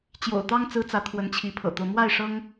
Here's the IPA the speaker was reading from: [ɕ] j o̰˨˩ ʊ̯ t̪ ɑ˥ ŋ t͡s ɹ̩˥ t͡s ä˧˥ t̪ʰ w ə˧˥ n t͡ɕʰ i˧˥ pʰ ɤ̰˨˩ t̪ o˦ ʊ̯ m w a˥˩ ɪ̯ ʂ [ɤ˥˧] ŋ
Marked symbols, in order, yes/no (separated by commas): no, no